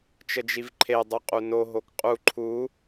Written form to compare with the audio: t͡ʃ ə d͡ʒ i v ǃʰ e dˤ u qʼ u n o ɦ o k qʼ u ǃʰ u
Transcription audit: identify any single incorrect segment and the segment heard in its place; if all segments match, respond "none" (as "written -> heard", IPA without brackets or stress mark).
none